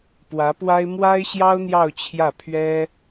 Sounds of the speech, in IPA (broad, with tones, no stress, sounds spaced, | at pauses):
p w ä˧˥ p w a˥ ɪ̯ m w a˥ ɪ̯ ɕ j ɑ˥ ʊ̯ n̪ j ɑ˥˧ ʊ̯ t͡ɕʰ j ä˥˩ pʰ ɥ ɛ˥